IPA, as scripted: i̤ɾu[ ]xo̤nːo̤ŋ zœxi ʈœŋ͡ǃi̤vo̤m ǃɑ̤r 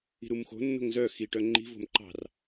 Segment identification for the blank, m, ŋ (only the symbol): m